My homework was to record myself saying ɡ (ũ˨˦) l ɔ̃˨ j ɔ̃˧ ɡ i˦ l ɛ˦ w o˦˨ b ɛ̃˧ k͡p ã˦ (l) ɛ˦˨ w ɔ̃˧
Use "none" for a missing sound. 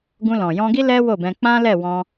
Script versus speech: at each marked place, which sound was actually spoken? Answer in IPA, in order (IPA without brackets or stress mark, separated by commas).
ũ˧, l